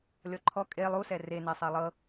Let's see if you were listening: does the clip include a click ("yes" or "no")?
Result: yes